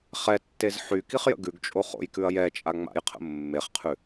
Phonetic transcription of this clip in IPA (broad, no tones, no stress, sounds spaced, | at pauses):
χ ɛ tː e z ħ y k i χ j ə̰ ɡ ʉ ɡ t͡ʃʼ o χ o̰ j k ʉ ɐ̯ j ɛ t͡ʃʼ a ŋ͡m a̰ j qʰ ə̰ mː e χ qʰ ʉ